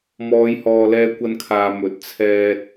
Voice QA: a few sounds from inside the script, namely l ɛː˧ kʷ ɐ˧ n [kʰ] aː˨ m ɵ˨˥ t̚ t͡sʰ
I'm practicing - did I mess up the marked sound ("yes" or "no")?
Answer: no